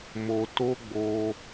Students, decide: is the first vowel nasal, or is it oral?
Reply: oral